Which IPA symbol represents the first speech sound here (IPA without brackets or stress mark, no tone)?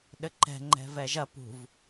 ɗ